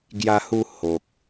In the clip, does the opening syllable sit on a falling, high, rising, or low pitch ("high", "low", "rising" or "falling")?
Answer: high